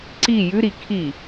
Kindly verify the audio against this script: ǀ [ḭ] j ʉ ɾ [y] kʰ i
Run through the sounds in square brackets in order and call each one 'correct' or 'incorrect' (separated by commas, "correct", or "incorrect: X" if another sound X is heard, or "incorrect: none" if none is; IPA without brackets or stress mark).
incorrect: i, incorrect: i